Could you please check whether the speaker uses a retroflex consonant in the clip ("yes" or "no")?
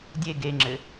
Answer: no